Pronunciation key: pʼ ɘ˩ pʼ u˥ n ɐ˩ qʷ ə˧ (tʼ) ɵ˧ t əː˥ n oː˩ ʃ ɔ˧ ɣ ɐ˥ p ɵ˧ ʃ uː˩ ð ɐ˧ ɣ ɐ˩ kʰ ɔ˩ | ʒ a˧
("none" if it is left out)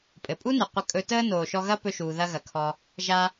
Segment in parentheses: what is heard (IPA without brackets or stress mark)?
kʼ